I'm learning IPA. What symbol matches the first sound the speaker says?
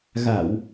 ɣ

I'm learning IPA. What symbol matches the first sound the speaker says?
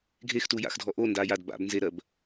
ɡʱ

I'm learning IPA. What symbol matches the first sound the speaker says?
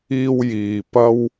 iː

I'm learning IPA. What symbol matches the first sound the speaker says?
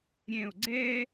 ɾʲ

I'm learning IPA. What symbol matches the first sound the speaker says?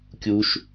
kʲ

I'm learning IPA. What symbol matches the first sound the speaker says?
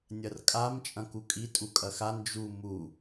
nʲ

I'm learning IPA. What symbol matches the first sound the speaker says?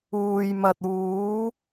uː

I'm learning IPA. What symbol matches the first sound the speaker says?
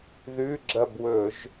ð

